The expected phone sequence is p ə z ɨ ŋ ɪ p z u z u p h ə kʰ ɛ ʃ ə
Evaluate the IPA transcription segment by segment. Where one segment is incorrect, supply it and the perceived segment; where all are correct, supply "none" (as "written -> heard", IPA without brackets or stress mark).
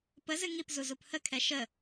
ɪ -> i